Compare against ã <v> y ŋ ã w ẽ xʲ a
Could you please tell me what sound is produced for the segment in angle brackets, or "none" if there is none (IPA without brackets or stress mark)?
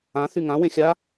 θ